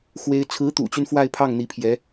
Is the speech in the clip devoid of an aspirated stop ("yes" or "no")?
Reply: no